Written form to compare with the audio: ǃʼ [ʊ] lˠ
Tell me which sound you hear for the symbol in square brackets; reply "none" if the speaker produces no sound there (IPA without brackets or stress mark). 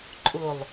ʊ